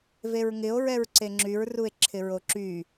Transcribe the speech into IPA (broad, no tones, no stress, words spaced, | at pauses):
veɹŋɪo̯ ɹɛɹǀeŋ͡ǁyɹ rue̯ǁʰɪɹoǁy